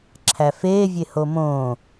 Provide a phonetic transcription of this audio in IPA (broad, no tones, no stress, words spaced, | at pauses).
ǁʰæfeː vʲehomõː